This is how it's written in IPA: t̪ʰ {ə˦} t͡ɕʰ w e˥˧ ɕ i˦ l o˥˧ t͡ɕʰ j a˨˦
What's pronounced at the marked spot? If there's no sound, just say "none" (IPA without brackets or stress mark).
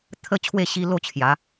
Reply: ə˦